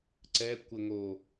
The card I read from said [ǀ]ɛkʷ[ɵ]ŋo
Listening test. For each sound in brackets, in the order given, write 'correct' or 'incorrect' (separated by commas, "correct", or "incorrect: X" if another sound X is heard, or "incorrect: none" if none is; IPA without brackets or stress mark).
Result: correct, incorrect: ə